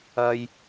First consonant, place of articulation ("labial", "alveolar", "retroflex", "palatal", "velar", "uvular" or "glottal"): palatal